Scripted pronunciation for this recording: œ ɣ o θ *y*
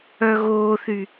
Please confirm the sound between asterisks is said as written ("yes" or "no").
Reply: yes